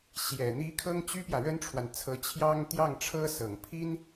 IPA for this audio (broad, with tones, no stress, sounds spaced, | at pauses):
ɕ j ɛ˨˩ n̪ i˧˥ kʰ ɤ˥ ŋ t͡ɕ y˥ p j ä˨ ɻ ə˥ n ʈ͡ʂʰ w a˨ n t͡sʰ ɤ˧˥ t͡ɕʰ j ɑ˥ ŋ t̪ j ɑ˥˩ ŋ ʈ͡ʂʰ ɤ˥ s ɤ˨˩ ŋ pʰ i˥ n